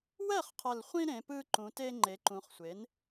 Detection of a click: present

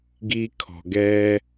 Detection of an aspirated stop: present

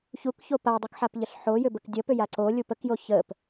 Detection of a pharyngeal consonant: present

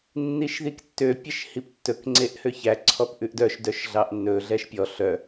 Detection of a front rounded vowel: present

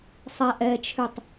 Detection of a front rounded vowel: present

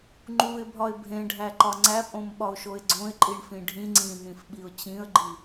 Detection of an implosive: present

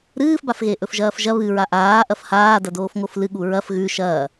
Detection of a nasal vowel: absent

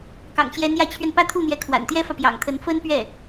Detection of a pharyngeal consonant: absent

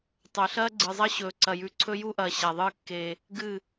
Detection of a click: present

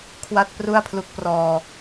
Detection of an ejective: absent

